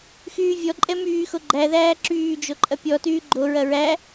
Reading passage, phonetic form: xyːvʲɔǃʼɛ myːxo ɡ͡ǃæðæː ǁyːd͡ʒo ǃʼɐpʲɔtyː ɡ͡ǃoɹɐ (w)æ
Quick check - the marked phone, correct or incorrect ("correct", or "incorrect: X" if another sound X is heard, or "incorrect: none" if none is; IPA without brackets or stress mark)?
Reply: incorrect: ɹ